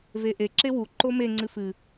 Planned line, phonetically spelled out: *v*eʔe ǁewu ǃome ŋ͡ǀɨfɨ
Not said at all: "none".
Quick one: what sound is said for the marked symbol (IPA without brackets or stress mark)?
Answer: v